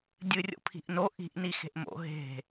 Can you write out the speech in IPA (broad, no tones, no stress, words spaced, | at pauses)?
dʲɨrʲo̰pʰi̤ʔno ʔi̤ʔ nixe̤ʔmo̰ ɦe̤